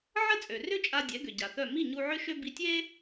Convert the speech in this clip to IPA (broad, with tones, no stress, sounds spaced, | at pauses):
ʕ ə˥ t͡sʼ ø˩ r ʏ˥ t͡ʃʼ a˧ dʲ ɛ˩˥ ɡ ʏ˩ ɟ a˩ θ œ˥˩ m i˥˩ ɲ u˧ ʕ ʏ˥ ʃ ø˥ b i˧ tʲ e˥